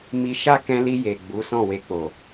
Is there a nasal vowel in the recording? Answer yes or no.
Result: yes